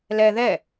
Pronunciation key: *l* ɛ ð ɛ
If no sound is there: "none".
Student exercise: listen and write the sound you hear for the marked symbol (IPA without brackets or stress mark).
l